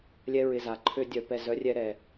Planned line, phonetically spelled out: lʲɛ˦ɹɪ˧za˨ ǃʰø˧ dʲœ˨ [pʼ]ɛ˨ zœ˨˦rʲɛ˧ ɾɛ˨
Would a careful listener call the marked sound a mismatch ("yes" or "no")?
yes